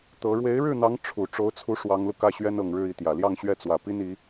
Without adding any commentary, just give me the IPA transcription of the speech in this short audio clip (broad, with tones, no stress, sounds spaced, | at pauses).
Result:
t̪ ɤ˧˥ ɻ w e˧˥ ɪ̯ ɻ ɻ̩˥˩ n̪ ɑ˧˥ ŋ ʈ͡ʂʰ u˨˩ ʈ͡ʂ o˧˥ ʊ̯ t͡sʰ u˧˥ ʂ w ɑ˧˥ ŋ l u˧ k ä˥˩ ɕ ɥ ɛ˥ n ɤ˨˩ ŋ ɻ ɻ̩˥˧ i˥˩ t̪ j ä˨˩ l j ɑ˥˧ ŋ ɕ ɥ ɛ˥˩ t͡s w ä˨˩ p i˥ n i˧˥